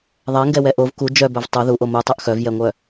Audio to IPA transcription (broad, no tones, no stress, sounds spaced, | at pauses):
ðˤ ɛ ŋ ɡ ɛ w ɛ ʔ o v k u d͡ʒ œ b œ v tˤ o ð u ʔ o m u tˤ œ ʔ x œ v j ɛ ŋʷ œ